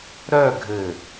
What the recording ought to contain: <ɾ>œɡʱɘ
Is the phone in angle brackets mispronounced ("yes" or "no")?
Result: no